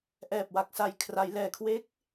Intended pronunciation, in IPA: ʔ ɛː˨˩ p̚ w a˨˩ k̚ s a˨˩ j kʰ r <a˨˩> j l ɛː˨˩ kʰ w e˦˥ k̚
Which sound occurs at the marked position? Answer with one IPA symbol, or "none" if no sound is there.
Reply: a˩˦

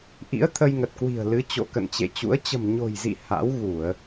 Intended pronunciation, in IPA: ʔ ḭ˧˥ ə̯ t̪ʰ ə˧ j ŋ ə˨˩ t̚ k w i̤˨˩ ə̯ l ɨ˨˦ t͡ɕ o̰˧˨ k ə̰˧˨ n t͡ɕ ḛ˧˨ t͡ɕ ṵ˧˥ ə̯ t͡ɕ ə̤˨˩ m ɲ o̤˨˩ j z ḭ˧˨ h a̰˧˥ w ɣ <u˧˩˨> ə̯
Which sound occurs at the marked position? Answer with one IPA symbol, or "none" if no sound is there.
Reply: u˧˩˨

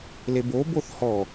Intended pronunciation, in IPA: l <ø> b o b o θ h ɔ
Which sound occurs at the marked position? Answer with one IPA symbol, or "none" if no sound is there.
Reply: e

